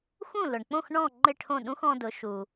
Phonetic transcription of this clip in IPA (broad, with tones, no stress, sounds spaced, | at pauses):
x ũ˥˩ l ʊ˩ ɳ k͡p õ˥˩ x ɳ ɔ̃˥˩ ŋ͡ǃ ɪ˥˩ ʈʰ õ˥˩ ɗ ũ˥ x ɔ̃˧ d ʊ˩˥ ʃ u˩